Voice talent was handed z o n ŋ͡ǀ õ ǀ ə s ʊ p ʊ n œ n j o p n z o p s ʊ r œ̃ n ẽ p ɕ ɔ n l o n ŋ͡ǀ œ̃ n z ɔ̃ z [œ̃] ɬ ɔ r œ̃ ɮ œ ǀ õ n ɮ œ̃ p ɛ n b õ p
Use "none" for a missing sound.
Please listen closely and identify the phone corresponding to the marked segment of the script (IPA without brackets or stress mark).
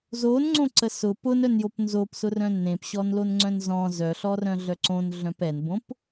œ